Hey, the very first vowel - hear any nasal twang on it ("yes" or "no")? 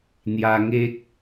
no